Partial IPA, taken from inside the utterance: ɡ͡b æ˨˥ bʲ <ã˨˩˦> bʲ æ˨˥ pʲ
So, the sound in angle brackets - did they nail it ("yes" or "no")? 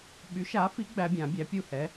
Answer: yes